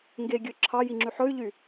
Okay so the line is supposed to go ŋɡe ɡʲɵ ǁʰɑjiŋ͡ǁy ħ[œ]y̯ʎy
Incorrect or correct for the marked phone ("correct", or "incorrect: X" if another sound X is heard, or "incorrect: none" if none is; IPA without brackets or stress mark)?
incorrect: ɵ